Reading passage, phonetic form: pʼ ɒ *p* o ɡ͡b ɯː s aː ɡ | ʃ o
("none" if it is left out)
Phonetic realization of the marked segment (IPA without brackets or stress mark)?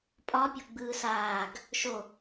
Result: pʲ